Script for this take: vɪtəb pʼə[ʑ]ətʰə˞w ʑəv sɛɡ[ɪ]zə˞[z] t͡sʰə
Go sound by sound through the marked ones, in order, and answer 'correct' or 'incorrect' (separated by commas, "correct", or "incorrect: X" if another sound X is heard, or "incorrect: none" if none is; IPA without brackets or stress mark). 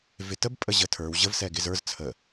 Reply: correct, correct, correct